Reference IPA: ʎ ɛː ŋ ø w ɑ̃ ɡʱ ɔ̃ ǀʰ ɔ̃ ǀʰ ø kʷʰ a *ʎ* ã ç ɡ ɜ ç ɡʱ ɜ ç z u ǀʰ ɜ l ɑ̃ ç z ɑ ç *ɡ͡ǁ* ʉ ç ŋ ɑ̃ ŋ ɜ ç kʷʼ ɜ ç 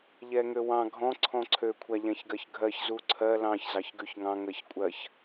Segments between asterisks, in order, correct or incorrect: correct, incorrect: ɡ

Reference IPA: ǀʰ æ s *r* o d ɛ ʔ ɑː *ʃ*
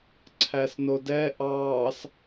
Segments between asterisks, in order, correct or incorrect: incorrect: n, incorrect: s

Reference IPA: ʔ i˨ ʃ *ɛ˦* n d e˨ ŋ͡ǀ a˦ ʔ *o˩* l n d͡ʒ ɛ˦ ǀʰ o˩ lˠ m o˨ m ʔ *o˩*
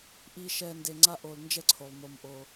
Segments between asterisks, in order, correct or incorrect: incorrect: ɛ˨, incorrect: o˨, incorrect: o˨

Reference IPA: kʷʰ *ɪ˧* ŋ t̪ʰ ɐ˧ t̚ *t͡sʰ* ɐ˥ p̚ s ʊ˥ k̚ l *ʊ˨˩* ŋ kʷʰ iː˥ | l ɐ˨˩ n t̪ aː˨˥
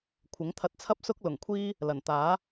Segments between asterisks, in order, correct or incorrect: incorrect: ɪ˨˥, correct, correct

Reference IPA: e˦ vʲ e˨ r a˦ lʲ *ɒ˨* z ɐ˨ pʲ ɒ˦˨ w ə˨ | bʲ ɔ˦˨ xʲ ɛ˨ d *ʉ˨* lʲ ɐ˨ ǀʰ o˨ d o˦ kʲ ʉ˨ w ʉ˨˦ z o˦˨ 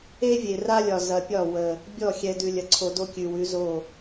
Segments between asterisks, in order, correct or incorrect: correct, correct

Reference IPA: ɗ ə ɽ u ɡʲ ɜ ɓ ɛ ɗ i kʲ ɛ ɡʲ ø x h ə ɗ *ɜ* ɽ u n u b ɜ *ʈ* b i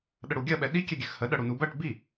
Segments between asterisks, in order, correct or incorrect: correct, correct

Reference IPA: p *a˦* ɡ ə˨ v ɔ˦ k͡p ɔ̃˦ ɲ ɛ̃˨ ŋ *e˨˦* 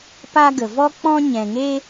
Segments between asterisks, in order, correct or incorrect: correct, incorrect: e˦

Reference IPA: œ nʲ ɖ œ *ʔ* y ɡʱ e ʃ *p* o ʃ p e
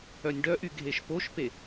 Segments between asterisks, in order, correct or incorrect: correct, correct

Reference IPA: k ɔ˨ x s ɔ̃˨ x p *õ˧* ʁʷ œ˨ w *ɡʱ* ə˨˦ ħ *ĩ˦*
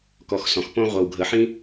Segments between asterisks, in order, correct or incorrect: correct, correct, correct

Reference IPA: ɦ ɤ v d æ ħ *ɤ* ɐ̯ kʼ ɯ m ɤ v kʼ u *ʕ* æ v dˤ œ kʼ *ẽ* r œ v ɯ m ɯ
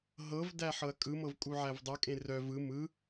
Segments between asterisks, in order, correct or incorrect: correct, correct, correct

